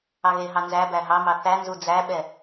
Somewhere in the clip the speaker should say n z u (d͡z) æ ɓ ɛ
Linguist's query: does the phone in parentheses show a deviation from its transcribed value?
no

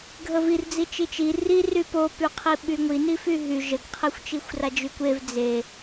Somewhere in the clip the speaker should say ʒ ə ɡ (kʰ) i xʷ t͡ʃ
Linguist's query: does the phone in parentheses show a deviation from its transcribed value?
yes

